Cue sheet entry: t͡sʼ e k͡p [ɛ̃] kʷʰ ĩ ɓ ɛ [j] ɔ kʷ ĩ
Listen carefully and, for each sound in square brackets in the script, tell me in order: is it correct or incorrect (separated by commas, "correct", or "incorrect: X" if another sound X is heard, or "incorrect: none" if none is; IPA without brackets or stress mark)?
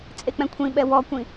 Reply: correct, incorrect: w